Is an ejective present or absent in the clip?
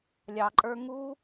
present